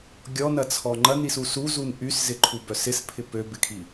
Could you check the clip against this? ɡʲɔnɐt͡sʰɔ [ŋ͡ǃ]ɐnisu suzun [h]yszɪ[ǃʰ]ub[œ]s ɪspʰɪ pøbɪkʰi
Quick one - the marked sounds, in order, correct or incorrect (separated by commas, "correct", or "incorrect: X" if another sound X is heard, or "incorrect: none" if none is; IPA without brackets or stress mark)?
correct, incorrect: ʔ, correct, correct